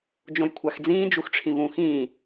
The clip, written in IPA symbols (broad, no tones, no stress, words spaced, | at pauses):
d͡ʒõjkʷʰaxd͡zĩː d͡ʒuxʈ͡ʂʰĩvũxĩː